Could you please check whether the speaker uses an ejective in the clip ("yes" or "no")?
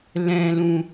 no